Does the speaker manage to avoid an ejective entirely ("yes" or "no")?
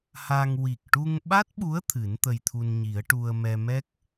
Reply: yes